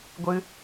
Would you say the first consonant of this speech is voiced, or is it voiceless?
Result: voiced